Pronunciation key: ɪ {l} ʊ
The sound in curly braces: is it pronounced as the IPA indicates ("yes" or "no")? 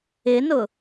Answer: no